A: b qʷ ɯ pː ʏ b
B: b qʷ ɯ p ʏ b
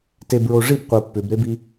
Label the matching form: A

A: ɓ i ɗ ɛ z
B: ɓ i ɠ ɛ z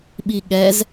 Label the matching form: B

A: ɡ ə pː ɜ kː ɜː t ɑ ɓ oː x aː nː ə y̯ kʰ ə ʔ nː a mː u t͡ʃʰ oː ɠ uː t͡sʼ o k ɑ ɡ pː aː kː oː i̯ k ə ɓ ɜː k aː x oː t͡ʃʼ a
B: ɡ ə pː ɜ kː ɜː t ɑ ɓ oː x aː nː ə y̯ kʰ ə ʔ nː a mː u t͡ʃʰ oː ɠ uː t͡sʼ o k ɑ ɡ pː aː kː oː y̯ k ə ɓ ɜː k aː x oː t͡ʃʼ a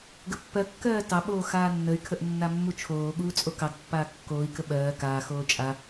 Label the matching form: A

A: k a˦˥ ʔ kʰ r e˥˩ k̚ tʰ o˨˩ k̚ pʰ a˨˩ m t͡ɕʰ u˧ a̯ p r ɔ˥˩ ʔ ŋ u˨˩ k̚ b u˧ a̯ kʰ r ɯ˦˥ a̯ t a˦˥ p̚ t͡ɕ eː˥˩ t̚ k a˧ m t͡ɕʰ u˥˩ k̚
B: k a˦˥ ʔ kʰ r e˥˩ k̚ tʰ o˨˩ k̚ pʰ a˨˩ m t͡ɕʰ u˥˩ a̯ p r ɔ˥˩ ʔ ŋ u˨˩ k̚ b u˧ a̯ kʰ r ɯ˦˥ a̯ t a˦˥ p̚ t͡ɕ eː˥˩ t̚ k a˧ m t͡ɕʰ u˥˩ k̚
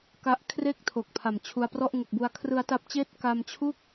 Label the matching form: A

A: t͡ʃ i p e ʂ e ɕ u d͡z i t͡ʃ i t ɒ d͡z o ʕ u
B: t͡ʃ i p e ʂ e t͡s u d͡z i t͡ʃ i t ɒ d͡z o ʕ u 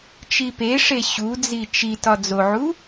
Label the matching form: A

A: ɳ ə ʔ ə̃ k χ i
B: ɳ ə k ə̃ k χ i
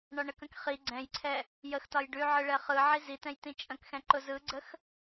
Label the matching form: B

